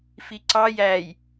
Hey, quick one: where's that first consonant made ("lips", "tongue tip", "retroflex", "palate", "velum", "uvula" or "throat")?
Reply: lips